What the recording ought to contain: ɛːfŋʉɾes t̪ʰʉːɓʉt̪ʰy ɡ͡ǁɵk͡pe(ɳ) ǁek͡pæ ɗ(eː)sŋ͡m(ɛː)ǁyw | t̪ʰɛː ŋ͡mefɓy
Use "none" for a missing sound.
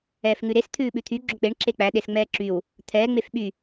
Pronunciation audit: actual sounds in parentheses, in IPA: ɳ, e, ɛː

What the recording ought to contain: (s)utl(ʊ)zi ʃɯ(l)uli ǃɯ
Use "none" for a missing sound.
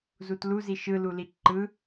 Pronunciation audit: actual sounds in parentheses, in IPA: z, u, l

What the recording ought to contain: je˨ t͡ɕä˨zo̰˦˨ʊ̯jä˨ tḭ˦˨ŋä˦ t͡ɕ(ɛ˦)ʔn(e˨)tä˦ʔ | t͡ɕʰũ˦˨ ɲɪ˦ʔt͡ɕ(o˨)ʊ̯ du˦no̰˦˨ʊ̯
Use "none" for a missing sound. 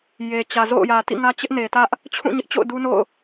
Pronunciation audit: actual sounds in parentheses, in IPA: ɪ˦, e˨, o̰˦˨

